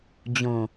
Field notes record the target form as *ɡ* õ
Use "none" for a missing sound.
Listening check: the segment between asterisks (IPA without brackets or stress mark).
d͡ʑ